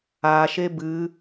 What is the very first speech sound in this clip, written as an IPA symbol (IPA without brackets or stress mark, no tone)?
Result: a